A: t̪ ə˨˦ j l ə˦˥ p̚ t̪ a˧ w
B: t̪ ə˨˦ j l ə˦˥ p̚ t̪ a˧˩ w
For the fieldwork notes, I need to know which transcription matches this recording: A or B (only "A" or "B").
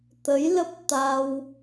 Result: A